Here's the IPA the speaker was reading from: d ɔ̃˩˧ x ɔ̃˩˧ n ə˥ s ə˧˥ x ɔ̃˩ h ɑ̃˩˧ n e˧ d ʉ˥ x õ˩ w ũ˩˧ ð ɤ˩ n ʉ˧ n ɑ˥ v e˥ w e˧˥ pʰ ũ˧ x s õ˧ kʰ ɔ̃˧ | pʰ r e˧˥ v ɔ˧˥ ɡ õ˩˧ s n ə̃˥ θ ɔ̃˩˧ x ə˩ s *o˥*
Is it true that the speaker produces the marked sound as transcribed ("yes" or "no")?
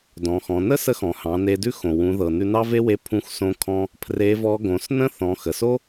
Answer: yes